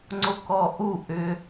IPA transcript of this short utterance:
ŋ͡ǀ o k ɔ ʔ u ʔ ʏ

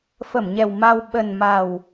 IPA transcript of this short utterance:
f ə˧˩ m ɲ ɛ˨˩ w m a˧ w ɓ ə˨˩ n m a˨˩ w

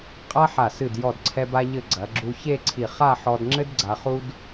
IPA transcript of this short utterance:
qʼ a˥ ħ a˧˩ s ɨ˧˩ d j ɔ˧˩ d ǀʰ ɛ˧ b a˧ ʎ ɘ˧˩ ɡ͡ǀ ɐ˩˧ ɡ͡ǁ u˧ ç e˥˧ ǀʰ i˧˩ χ a˥˧ ħ ɔ˧ d ŋ͡ǁ ɘ˥ d ɡ͡ǀ a˧ χ u˥ d

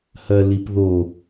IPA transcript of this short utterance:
h ɜ l i p ð o

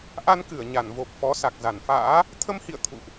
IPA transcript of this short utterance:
ʔ a˧ n k ɨ˧˩ ə̯ ɲ a˧˩ n v o˨˩ p̚ f ɔ˨˦ s a˨˩ k̚ z a˧˩ n f a̰ː˧˥ | t̪ʰ ə˧ m h ḭ˧˨ ə̯ t̪ʰ ṵ˧˨ ʔ

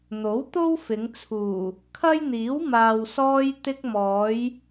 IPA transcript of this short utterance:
n̪ o˨˥ w t̪ o˥ w f ɪ˨˧ ŋ t͡sʰ uː˨˩ | kʰ ɐ˥ j n̪ iː˨˥ w m aː˨ w s ɔː˧ j t̪ ɪ˧ k̚ m ɔː˨˧ j

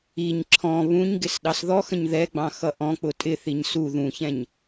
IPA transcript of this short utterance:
i ɲ ǁʰ ɔ̃ β ũ ɲ ɡ ɪ s ɗ ɑ s ð ɔ x ə̃ ɲ ð ɛ ɡ͡b ɑ̃ x ʌ ʔ ɔ̃ k͡p ʊ tʼ ɪ θ i ɲ s u ð ũ ç ɛ̃ ɲ

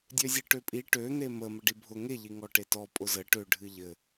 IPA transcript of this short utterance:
dʲ ø zʲ ɨ ʈ ø pʼ i ʈ ø n̪ e m ə m ə ɖ i bʱ ʊ ŋ e ʎ i ŋ ɔ ʈ e t ɔ pʼ ʊ z ə ʈ ø ɖʱ ɨ ʎ ɘ

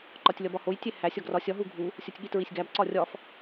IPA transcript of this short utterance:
ǃ ɒ tʲ lʲ ɒ b ɒ h o j tʲ e h æ sʲ ɒ ɡ r ɒ sʲ ɒ ɦ u ɡʱ u | sʲ o tʲ ɠ i t ɹ i sʲ ɡ æ b ǀ ɒ rʲ ɒ f

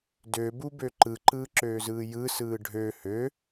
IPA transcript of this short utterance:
d ø b u b ø ǃ ɯ ǃ ɯː ǁ øː z ɯː j ɯ s ɯː ɖʱ ø h ø

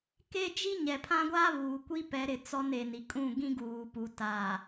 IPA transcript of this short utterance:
k e˦ d͡ʒ i˦ ɲ ɛ˨ pʰ ã˦ ɡʷ aː˦ β uː˨ kʷ i˦ p ɛ˨˦ ɾ ɪ˨ t͡s ɔ˦ n e˨ n i˨ kʼ ũ˦˨ ɡ ĩ˦ ɡ uː˨ p u˨ t a˨

